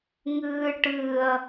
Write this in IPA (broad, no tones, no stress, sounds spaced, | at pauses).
ŋ ɨː ʈ ɨ ɐ̯